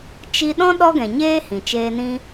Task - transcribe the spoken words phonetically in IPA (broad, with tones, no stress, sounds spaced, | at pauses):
t͡ʃ i˧ ɗ ɔ̃˦ ɗ ɔ˦ ɡ ɛ̃˨ ɲ eː˦ h ĩ˨ t͡ʃ eː˧ n ĩ˦